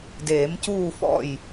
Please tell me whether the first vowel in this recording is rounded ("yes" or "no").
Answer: no